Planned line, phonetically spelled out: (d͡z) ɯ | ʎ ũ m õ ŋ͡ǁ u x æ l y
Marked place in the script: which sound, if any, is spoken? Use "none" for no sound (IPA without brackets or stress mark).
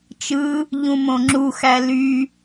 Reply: t͡ʃ